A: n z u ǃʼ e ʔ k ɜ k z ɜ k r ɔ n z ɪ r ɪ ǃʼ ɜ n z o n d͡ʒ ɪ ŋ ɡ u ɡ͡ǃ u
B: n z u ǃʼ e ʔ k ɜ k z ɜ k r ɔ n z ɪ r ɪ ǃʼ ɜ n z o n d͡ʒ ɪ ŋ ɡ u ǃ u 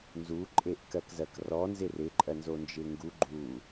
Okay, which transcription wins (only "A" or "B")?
A